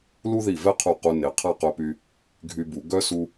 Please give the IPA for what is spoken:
l u˥ ð i˧˩ v ɛ˥˧ qʰ u˧˩ q u˧ n e˩˧ qʰ a˥˧ q œ˧ p y˧ | ɡʱ y˧ b u˩˧ ɡ œ˥ s u˧

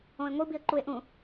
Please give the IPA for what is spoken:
õ ɪ̯ ŋʷ i b i ə̯ ǃ u ɪ̯ ʔ ũ

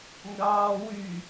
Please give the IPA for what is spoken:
ŋ ɡ ɑː w y

